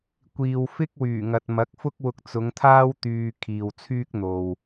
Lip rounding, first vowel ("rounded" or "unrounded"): unrounded